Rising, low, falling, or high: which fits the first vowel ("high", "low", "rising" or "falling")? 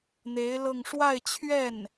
rising